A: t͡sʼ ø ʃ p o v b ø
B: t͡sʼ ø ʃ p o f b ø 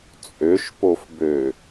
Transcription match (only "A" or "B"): B